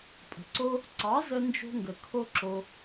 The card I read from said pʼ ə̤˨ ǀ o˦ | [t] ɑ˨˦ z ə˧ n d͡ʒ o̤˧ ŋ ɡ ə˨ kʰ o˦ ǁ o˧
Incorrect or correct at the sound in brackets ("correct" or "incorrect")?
incorrect